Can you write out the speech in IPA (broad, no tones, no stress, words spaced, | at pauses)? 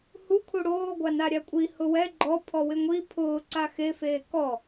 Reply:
hu kʰuɽoː ɡʷanaɾʲakʷʼi hʊwɛ ɡ͡ǃɔ pʰɔwɪŋʷi pʰʊː ǀaxe feːkɔ